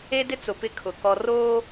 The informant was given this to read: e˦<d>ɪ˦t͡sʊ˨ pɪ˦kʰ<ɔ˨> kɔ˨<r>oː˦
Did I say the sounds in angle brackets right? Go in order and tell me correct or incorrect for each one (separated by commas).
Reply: correct, incorrect, correct